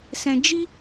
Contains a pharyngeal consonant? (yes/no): no